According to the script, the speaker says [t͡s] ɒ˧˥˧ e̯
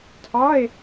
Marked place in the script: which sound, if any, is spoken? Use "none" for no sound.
tʰ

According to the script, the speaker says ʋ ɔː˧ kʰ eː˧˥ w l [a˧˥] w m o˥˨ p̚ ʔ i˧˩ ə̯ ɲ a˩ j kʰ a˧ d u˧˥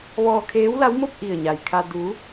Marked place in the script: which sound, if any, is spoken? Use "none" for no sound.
a˧˥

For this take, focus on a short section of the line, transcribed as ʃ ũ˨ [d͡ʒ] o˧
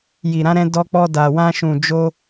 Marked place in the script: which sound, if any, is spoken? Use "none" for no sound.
d͡ʒ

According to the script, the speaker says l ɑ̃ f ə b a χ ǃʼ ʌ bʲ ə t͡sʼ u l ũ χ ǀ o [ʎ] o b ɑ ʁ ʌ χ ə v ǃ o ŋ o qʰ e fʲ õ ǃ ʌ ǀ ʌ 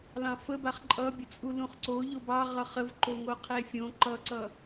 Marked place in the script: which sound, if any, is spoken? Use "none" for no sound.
ʎ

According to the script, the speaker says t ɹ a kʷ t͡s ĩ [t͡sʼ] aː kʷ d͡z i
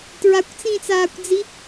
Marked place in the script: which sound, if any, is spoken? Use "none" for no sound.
t͡s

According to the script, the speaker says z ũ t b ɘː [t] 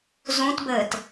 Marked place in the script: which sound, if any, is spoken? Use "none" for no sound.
t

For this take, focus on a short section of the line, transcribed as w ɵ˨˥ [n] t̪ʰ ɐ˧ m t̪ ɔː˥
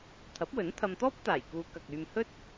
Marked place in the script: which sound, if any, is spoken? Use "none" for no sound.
n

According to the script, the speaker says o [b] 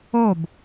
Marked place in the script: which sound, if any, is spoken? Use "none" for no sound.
b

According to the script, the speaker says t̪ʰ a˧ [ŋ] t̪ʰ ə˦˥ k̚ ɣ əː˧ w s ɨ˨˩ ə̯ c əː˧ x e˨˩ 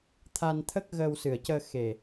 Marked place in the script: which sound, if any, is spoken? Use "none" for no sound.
n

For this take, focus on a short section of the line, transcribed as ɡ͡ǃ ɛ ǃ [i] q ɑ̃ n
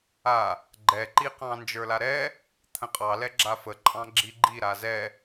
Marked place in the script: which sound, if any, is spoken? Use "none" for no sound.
i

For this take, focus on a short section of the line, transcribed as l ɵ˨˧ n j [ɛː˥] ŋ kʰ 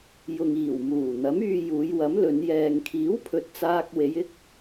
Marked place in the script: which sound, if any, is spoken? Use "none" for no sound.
ɛː˨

